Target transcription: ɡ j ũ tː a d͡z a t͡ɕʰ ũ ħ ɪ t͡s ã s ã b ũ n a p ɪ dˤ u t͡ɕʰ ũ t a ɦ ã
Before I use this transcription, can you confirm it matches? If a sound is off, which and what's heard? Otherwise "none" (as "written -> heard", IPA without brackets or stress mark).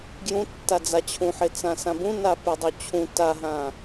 none